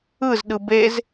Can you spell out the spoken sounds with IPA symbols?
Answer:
ɯ z ɗ ɯ b e z

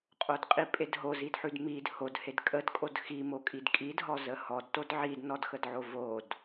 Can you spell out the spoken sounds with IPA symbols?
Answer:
qʼ o d qʼ i pʼ e d ɦ o z i d ħ ʉ d m i d h o d h e d kʼ ə d kʼ o d x i m o kʼ i d kʼ i d ɦ ɔ z ə h ɔ d t o d ʕ i d n ɔ d x ə d ʕ o v o d

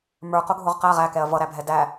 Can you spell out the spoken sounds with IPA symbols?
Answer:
m ə˞ q ʊ ɡʱ ʊ ʁ q æ ʁ æ k ɛ ɐ̯ v ʌ ɾ æ bʱ ɛ d æ

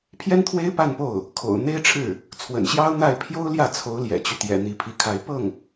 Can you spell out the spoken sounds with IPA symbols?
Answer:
pʰ j ɛ˥ n t̪ʰ w e˥ ɪ̯ p a˥˧ n p o˥˩ ʊ̯ | kʰ o̰˨˩ ʊ̯ n̪ e˥ ɪ̯ ʈ͡ʂʰ ɻ̩˥˩ | t͡sʰ w ə̰˨˩ n ɕ j ɑ˥ ʊ̯ n̪ a˥˩ ɪ̯ pʰ j o˥ ʊ̯ l j ä˥˩ t͡sʰ o˧˥ ʊ̯ l j ɛ̰˨˩ t͡ɕ y˦ t̪ j ɛ̰˨˩ n̪ i˥˩ pʰ i˥ kʰ a˥ ɪ̯ p ɤ˥˩ ŋ

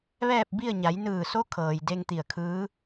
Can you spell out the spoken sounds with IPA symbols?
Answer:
ʋ ɛː˥˨ p̚ b i˥˨ ə̯ ɲ a˩˧ j n ɯː˧˩ s o˧˥ kʰ ɤː˩ j d e˧ ŋ t̪ i˧˩ ə̯ kʰ ɯː˧˥

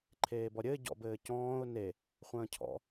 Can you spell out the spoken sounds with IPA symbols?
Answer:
ǃʰ eː b ɔ ɾʲ ɘ ɟ ɔ̰ b ɘː c ɔ̃ː ʊ̯ n e | χʷ ə̃ː cʰ ɔ̰

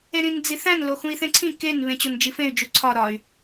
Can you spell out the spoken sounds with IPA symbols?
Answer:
e ɾ ĩ n d͡z i θ æ̃ n l o x ũ i̯ θ ẽ ǀʰ ĩ k e n β ẽ t͡ɕ o n d͡ʒ i f ẽ y̯ d͡ʒ u ǀʰ ɒ ɾ ɒ y̯

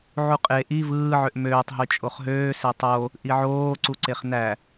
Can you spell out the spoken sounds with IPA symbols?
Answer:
ʕ u qʼ e ʔ i v ɯː ʕ ø ʔ m øː tˤ ɦ y t͡ʃʼ o χ ɦ øː s e tˤ o | ʔ i ʕ oː ǀ u ǀ e χ n æ

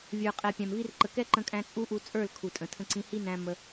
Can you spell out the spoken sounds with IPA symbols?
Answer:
vʲ ə˞˨ qʼ ɛ˨ pʲ æ̃˨ m v i˧ r ǃ ə˨ k ɛ˦ ǃ ə̃˧ kʼ æ̃˧ t͡sʼ u˦ ʔ u˧ t͡sʼ ə˞˦˨ l kʰ u˨ tʼ ə̃˨ tʰ ə̃˦ ǀ ĩ˧ h i˦ n æ̃˧ m ə˧

